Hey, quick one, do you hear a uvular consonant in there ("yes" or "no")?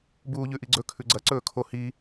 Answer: no